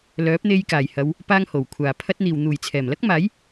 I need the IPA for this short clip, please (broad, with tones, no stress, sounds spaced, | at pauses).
l œː˨˥ p̚ n̪ e˧ j k aː˨˩ j h ɐ˨˧ w | p aː˥ ŋ h o˨˩ w kʷʰ aː˨˩ pʰ ɐ˥ t̚ n̪ iː˨ w n̪ uː˨˩ j t͡sʰ ɛː˨˩ m l ɐ˥ k̚ m aː˨˥ j